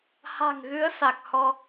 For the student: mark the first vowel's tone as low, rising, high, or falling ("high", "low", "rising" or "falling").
low